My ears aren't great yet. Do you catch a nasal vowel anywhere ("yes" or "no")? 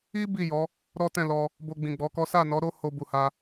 yes